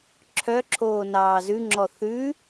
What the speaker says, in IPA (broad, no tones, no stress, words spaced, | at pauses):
ǁʰœǁʰoːnɑː zʉŋ͡ǁɔ θʉ